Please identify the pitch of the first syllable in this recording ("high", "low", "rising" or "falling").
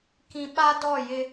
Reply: low